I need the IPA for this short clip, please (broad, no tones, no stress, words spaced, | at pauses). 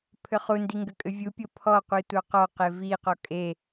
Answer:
pʰʏχundi ŋɡʏkʼʏvʲupʲo pʰɔqʷi tʷɑqɔqe viqɔ kʼe